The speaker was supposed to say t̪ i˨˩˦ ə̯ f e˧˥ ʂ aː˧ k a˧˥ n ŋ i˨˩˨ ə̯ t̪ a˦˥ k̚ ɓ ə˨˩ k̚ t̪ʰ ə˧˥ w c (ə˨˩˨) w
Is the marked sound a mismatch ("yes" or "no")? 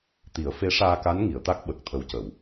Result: no